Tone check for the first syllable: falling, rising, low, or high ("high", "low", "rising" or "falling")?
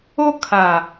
high